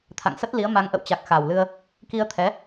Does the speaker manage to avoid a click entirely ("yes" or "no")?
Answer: yes